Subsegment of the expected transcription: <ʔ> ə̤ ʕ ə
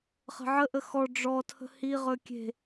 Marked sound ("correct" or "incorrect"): incorrect